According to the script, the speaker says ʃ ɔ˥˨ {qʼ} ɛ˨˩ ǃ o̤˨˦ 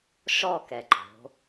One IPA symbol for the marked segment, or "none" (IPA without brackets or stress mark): k